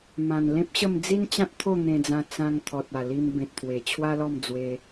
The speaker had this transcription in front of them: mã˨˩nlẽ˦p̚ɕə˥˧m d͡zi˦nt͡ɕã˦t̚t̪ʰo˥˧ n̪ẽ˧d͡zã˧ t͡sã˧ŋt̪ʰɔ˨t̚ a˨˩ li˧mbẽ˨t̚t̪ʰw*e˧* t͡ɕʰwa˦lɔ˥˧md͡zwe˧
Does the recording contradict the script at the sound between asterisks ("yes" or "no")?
yes